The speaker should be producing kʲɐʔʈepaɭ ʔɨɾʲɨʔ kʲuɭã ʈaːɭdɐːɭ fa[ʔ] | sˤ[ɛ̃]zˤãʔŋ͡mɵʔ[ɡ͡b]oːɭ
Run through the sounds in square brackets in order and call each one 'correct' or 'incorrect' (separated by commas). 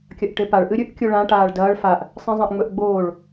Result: correct, incorrect, correct